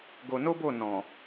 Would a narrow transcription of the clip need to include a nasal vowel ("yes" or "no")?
yes